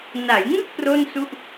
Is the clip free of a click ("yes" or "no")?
yes